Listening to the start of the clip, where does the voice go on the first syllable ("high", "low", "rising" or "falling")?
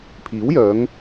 rising